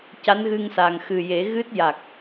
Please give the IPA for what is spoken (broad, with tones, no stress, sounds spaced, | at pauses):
c a˧˥ n ɣ ɨ˧ ŋ s a˨˩ ŋ x ɨ˨˩ j e˨˩˦ ɣ ɨ˦˥ t̚ j a˨˩ k̚